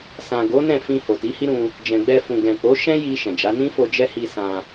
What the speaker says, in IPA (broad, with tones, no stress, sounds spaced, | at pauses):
s ã˨ ɡ o˨˦ n ɛ̃˦˨ f ĩ˧ h o˨ t i˨˦ h i˦ ɾ ũ˧ | d͡ʒ ɛ̃˨ ɡ͡b ɛ˧ f ũ˨ ɡ ɛ̃˨ k͡p o˨˦ ʃ ɛ̃˦ j i˧ ʃ ɛ̃˨ d͡ʒ a˨˦ n ĩ˦ f o˧ d͡ʒ ɛ˦ h i˧ s ã˧